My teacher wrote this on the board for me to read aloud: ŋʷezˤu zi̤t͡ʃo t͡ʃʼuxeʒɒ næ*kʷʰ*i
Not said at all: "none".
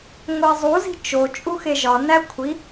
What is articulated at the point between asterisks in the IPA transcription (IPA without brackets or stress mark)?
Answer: kʷʰ